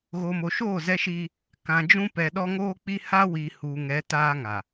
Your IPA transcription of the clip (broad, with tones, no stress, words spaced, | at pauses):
ɣoː˨mo˨ʃoː˦˨ zɛ˦ʃiː˦ | kã˨ d͡ʒũ˦ pɛ˨ɗɔ˦ŋoː˦k͡pi˦ ha˦wi˨ huː˨ŋɛ˨˦ taː˦ŋa˨